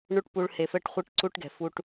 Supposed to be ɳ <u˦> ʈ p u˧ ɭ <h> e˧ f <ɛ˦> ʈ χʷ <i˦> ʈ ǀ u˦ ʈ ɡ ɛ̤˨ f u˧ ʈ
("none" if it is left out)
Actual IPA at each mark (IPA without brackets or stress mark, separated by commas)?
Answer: u˦, h, ɛ˦, i˦